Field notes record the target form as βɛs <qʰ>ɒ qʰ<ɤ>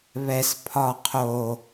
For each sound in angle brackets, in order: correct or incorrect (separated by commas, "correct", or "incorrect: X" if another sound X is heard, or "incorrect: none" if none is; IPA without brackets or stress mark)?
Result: incorrect: pʰ, incorrect: o